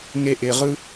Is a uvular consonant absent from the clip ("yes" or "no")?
no